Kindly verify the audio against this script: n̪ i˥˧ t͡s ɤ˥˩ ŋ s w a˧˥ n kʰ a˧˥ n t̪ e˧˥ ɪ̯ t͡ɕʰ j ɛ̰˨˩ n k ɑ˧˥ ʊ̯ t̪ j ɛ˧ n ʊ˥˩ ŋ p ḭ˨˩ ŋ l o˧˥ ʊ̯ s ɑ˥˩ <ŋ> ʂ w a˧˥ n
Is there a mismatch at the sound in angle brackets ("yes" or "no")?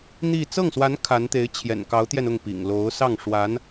no